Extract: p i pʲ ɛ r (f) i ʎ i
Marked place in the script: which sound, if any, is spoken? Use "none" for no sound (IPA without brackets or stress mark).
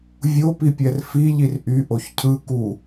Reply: f